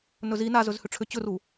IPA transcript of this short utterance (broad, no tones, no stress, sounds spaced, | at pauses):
n ɵ z i n a z ɵ z h ʏ ʈ͡ʂʰ ʏ t͡ɕ ɵ r u